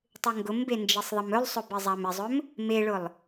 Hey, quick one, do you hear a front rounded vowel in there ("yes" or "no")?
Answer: yes